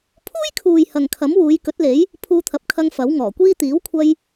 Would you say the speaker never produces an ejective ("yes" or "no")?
yes